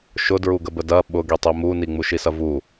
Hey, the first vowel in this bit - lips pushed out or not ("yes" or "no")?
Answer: yes